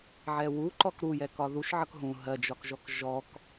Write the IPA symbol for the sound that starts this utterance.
ʕ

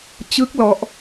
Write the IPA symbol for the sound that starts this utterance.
t͡ɕ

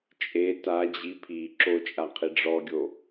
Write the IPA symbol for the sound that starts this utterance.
t͡ʃʼ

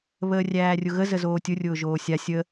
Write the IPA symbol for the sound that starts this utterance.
β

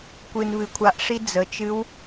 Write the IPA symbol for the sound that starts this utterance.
kʷ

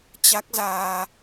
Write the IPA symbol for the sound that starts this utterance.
t͡ɕ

